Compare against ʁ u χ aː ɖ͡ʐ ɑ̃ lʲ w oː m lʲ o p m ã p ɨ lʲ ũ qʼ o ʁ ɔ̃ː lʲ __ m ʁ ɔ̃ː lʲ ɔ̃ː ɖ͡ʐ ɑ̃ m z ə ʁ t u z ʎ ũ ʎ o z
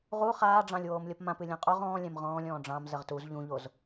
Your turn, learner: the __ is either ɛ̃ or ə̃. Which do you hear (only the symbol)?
ɛ̃